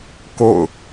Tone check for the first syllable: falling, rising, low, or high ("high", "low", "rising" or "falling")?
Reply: falling